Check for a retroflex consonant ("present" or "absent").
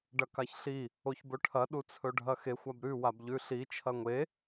present